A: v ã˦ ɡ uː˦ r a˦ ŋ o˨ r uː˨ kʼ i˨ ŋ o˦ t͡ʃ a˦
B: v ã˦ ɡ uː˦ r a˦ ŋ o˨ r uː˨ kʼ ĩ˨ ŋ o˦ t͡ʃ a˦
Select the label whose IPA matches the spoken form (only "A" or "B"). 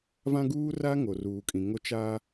B